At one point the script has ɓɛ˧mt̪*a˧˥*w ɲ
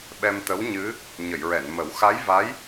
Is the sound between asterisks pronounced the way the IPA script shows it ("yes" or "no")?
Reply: no